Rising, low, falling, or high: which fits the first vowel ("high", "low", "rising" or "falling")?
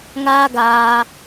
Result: high